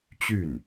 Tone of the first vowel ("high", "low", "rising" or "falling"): falling